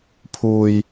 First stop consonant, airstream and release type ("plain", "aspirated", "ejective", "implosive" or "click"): aspirated